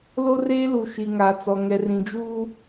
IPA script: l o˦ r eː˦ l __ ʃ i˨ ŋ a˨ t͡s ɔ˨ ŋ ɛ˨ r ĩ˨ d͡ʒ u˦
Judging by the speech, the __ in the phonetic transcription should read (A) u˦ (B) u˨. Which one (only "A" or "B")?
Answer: B